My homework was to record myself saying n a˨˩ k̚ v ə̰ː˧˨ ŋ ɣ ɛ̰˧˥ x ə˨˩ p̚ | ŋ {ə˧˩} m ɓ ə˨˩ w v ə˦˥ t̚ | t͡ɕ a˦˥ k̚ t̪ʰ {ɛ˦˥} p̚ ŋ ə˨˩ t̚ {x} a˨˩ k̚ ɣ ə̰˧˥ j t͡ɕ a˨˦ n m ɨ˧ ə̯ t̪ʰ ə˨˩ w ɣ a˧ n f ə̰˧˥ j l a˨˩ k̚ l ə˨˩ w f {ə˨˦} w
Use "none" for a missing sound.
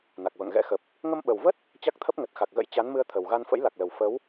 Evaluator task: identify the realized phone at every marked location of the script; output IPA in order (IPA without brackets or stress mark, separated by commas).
ə˧, ə˦˥, x, ə˨˦